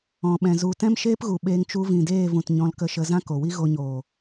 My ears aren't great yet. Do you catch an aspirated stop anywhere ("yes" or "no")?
no